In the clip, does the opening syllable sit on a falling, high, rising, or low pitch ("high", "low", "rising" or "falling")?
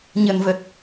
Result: low